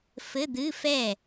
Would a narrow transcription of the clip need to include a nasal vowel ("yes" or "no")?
no